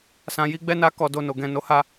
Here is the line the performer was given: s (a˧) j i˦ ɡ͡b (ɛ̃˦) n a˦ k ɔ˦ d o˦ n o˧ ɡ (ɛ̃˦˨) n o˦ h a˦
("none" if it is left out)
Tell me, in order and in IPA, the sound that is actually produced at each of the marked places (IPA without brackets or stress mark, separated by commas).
ã˧, ɛ˦, ɛ̃˧